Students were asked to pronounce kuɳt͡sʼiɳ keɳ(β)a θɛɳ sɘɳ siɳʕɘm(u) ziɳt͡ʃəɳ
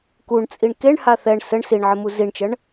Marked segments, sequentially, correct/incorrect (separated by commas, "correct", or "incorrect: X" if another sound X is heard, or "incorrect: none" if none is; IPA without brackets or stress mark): incorrect: h, correct